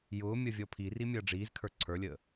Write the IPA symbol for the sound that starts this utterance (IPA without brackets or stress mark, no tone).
j